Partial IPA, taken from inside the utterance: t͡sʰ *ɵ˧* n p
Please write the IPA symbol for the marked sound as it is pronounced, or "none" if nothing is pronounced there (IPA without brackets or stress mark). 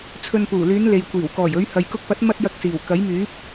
ɵ˧